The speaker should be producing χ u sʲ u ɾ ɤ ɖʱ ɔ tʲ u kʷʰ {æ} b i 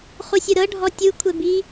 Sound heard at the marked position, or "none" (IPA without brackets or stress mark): ɛ